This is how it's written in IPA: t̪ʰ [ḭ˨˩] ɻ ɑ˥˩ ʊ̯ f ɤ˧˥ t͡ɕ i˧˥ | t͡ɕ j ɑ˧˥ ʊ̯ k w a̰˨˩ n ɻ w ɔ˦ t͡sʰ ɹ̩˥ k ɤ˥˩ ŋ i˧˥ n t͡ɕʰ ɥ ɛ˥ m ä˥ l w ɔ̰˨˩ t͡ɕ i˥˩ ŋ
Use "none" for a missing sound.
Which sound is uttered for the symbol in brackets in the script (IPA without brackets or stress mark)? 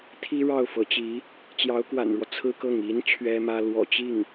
i˥